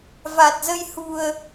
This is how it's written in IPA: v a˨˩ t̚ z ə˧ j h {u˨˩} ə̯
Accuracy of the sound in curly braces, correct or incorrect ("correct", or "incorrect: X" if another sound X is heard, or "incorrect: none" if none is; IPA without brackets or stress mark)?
correct